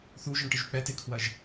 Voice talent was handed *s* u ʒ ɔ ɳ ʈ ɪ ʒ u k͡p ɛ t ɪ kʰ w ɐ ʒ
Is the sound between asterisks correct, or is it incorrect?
incorrect